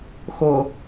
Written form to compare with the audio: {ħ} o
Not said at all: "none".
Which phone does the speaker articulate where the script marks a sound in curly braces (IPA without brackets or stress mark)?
x